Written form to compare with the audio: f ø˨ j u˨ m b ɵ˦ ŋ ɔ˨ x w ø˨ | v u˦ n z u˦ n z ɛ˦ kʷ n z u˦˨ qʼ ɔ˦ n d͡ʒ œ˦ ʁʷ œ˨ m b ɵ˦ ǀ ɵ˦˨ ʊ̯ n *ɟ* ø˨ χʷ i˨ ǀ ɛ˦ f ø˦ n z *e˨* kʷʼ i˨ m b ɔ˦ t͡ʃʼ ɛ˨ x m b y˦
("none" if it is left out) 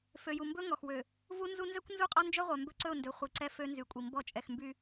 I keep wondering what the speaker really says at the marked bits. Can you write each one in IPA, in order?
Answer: d, y˨

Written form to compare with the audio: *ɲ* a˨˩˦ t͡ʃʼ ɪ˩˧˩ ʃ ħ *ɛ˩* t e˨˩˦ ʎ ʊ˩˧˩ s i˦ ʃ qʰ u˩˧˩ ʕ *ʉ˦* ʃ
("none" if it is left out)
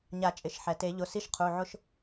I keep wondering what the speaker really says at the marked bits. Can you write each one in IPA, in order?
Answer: ɲ, ɛ˩, ʊ˦

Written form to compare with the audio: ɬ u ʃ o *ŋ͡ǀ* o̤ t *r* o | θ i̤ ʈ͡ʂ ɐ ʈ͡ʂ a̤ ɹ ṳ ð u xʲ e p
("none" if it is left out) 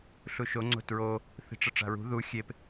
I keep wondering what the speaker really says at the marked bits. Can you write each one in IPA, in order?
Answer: ŋ͡ǀ, ɹ

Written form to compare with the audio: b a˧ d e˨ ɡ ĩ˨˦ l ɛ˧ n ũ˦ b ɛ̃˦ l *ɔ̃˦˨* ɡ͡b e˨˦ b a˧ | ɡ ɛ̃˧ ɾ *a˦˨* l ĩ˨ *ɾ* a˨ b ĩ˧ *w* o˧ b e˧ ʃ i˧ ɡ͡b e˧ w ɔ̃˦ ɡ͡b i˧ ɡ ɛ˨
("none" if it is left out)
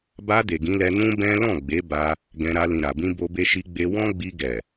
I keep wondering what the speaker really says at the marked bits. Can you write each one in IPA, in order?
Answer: ɔ̃˦˨, a˧, ɾ, b

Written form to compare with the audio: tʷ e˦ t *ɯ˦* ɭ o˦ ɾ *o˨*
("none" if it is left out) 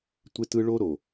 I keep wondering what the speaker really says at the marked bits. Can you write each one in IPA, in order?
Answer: ɯ˦, o˨

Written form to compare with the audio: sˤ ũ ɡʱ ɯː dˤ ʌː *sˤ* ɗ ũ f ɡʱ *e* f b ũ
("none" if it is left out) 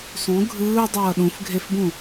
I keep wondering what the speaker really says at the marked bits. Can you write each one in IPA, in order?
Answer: none, e

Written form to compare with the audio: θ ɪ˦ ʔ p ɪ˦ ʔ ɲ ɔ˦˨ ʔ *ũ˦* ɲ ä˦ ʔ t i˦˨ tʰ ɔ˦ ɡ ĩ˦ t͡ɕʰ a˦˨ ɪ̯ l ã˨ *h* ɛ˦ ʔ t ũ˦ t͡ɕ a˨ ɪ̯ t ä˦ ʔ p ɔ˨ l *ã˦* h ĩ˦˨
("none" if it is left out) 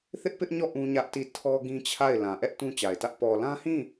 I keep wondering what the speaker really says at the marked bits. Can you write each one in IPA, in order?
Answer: ũ˦, ʔ, ã˦

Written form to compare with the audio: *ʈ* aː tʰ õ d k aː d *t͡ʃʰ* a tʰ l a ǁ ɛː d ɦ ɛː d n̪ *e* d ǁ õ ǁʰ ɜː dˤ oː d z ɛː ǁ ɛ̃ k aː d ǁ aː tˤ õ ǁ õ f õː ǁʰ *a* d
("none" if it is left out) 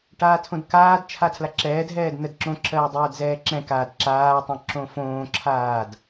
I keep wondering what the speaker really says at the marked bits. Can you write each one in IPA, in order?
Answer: ʈ, t͡ʃʰ, ɛ, aː

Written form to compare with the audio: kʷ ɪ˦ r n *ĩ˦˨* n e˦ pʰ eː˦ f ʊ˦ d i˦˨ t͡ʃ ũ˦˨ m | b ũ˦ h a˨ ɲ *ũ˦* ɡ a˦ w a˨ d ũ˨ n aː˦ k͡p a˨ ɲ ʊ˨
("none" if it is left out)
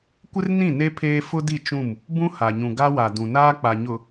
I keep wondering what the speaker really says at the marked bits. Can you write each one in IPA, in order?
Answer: ĩ˦˨, ũ˨

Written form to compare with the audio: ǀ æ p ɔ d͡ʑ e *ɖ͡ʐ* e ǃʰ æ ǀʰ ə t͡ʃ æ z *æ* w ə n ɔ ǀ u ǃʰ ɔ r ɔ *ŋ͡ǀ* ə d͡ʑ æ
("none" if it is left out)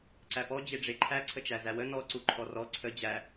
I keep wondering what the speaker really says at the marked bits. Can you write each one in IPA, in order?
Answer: ɖ͡ʐ, æ, ǀʰ

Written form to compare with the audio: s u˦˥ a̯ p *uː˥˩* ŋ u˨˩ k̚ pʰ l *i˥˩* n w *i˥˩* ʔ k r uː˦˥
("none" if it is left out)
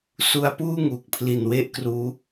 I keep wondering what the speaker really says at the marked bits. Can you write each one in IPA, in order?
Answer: uː˥˩, i˨˩, e˥˩

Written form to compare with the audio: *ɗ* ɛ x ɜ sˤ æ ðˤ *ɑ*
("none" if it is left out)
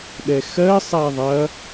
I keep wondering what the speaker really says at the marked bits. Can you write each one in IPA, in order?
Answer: ɗ, ɐ

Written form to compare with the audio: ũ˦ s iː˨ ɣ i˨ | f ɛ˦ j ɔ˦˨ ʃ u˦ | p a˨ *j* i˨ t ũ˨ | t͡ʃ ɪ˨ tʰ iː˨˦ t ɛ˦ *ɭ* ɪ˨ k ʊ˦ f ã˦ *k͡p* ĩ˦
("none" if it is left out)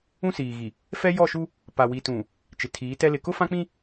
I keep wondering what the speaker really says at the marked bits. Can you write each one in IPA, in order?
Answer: w, l, k͡p

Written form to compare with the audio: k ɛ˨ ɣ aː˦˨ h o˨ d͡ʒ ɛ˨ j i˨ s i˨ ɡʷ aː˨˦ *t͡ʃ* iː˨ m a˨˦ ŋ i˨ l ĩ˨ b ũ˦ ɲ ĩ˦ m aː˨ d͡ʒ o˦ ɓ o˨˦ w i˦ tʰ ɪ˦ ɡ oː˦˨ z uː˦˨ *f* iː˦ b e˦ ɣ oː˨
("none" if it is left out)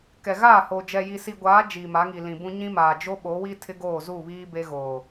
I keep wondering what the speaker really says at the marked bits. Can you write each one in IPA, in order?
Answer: d͡ʒ, β

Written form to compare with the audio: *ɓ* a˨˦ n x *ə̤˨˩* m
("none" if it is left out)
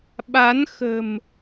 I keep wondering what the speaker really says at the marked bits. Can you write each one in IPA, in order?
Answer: ɓ, ə̤˨˩

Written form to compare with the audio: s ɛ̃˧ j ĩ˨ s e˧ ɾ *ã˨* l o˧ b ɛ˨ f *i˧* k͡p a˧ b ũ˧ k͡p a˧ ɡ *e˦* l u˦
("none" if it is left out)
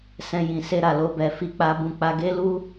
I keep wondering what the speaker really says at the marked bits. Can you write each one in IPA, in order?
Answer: a˨, i˧, e˦

